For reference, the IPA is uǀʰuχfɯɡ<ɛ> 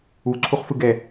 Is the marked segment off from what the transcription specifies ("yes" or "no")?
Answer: no